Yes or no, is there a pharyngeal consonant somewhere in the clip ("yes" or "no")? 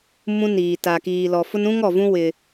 no